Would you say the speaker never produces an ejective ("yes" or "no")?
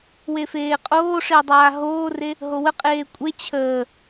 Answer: no